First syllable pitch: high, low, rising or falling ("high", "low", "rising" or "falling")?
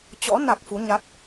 rising